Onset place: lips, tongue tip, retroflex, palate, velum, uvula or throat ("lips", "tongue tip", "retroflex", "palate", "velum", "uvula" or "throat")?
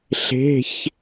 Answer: tongue tip